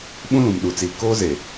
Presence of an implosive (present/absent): present